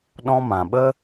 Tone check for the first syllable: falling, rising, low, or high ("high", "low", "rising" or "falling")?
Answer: high